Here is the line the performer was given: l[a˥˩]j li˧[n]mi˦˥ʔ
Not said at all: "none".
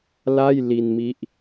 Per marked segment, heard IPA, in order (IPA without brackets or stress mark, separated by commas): a˥˩, n